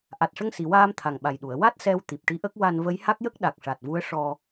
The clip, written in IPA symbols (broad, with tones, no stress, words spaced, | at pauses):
ʔa˨˩t̚ʂə˧ŋsi˨˩˨ waː˧m t̪ʰa˨˩ŋɓa˨˩jɗu˨˩˨ə̯ wa˦˥t̚ sɛ˧w t̪i˨˩p̚ʈi˧˥ʔə˦˥k̚ wa˧n və˧˥jha˦˥k̚jə˦˥k̚ɗa˨˩k̚ ʂa˨˩t̚vu˧˥ə̯ ʂɔ˧